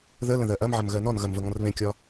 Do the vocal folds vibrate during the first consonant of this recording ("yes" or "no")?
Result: yes